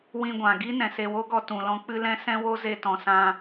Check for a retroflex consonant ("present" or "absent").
absent